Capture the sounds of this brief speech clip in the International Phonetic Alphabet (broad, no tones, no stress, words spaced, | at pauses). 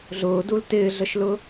ɮʊːdul tɪːɮəʃlʊ